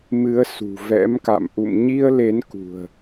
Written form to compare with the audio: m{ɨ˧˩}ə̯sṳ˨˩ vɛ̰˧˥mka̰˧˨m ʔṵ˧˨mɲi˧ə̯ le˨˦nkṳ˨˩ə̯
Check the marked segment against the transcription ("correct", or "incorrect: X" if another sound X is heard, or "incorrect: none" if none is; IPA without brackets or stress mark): incorrect: ɨ˨˦